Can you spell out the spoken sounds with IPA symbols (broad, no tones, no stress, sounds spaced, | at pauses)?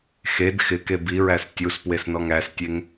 x e d x ɪ k e b i ɹ æ s tʲ u s p w e s n ɔ ŋ æ s tʲ e ŋ